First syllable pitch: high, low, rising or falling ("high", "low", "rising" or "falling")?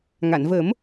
low